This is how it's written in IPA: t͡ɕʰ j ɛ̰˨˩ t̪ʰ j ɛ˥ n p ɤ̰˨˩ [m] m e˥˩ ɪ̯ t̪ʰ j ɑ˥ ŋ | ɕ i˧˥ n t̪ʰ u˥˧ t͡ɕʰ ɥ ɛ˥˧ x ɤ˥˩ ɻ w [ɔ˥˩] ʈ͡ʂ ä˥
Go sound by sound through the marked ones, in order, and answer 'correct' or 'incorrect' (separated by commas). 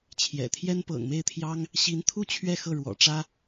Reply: incorrect, incorrect